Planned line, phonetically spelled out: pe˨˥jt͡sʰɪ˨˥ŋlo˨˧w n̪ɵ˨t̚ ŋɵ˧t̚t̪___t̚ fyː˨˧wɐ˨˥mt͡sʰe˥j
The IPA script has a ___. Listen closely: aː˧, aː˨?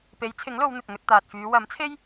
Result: aː˨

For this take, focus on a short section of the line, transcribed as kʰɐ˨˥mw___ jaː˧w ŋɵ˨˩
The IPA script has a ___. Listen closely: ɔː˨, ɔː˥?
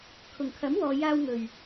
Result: ɔː˨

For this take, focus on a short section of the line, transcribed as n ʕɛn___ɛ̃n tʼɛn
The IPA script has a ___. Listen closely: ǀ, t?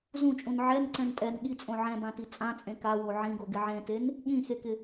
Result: ǀ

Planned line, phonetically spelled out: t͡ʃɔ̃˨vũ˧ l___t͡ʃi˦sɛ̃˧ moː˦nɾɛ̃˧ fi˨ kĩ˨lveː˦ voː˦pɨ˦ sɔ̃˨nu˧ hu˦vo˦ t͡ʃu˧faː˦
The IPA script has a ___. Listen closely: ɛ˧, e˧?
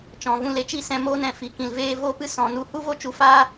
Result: e˧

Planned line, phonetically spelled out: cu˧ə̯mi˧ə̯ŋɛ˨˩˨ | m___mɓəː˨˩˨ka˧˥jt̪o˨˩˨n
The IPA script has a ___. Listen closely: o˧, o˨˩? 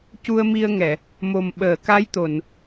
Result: o˨˩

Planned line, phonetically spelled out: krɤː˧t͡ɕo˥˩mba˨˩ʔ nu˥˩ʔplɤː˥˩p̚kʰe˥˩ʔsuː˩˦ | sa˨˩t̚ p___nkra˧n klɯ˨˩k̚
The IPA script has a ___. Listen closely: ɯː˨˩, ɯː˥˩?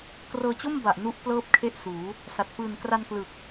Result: ɯː˨˩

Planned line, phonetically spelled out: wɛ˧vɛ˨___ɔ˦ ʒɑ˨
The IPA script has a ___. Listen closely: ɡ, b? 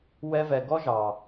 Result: ɡ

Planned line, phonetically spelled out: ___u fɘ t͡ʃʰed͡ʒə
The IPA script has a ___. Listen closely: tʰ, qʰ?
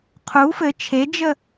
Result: qʰ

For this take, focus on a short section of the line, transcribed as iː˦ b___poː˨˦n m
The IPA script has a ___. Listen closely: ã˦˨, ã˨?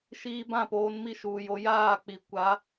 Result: ã˦˨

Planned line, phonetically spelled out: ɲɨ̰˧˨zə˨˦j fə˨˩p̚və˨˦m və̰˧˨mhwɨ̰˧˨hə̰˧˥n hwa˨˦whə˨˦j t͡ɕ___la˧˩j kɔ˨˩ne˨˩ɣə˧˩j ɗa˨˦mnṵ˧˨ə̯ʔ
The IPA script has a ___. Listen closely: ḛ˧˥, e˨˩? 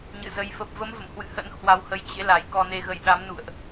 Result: ḛ˧˥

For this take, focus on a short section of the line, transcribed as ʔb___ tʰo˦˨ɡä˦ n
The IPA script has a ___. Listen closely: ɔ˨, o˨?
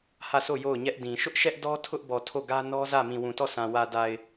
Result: ɔ˨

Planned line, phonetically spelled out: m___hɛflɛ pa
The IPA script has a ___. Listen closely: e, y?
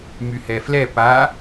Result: y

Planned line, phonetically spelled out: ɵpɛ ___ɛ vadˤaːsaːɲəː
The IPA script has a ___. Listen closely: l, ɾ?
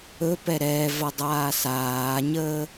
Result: ɾ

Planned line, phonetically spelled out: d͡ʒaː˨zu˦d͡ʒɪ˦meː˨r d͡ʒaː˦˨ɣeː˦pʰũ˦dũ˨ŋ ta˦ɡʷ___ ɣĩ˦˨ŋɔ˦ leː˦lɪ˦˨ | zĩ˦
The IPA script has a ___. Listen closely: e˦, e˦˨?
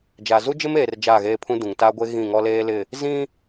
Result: e˦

